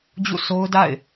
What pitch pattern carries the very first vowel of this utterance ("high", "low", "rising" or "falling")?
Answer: falling